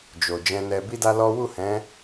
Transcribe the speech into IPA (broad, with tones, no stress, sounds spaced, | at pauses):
d͡ʒ o˨ d͡ʒ ɛ̃˧ n ɛ˧ b i˦ d a˦ l ɔ˦ w u˦˨ h ɛ̃˨˦